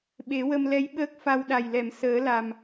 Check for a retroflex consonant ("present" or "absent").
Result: absent